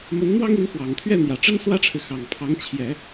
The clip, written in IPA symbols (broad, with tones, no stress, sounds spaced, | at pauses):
m ə˧˥ n n̪ w ɑ˥ ŋ i˧˥ n x w ɑ˨˩ ŋ t̪ʰ ɥ ɛ˥˩ n̪ j ä˨˩ ʈ͡ʂ ə˥ n s w ä˥ ʈ͡ʂʰ ɻ̩˨ x ɑ˨˩ ŋ pʰ ɑ˧˥ ŋ t͡ɕʰ j ɛ˨˩˦